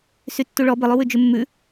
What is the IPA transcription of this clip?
s y tː u ɭ ɔ b ɪ lˠ u w ʉ d͡ʒ ʉ mː ʉ

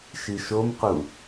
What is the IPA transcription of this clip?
ʃ i ʃ o m q u

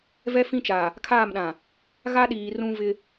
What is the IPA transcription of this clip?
v ɛ˦ f ĩ˦ t͡ʃ aː˨ | kʰ aː˦˨ m ɗ ã˨ | ɣ a˦ ɗ iː˨ r ũ˦ v ɪ˦

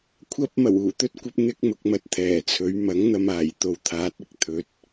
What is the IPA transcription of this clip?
kʷʰ ɐ˧ p̚ m ɐ˨˩ w uː˨˩ t̪ ɵ˥ t̚ kʷ ɐ˥ p̚ n̪ ɪ˥ k̚ m ʊ˨˥ k̚ m ɐ˨˥ t̚ t̪ʰ ɛː˨˩ t͡sʰ ɵ˨˥ ɥ m ɐ˨˥ ŋ n̪ ɐ˧ m aː˨˩ j t̪ o˧ w t̪ʰ aː˨˥ t̚ ɪ˧ k̚ t̪ʰ ɵ˨˥ t̚

